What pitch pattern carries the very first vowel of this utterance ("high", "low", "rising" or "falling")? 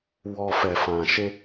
low